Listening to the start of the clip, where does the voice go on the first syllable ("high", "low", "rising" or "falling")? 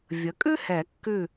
rising